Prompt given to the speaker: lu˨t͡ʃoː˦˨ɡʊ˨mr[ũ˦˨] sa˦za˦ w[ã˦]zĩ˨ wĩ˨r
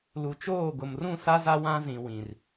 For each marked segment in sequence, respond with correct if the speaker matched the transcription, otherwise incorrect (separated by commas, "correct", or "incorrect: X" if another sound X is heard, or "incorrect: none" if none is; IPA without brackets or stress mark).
correct, correct